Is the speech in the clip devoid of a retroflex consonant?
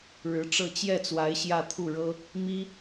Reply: no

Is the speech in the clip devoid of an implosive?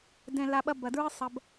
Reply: no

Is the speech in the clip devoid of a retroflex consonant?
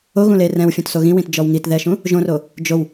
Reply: yes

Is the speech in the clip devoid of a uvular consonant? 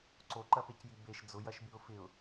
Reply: yes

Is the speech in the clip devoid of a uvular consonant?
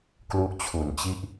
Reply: yes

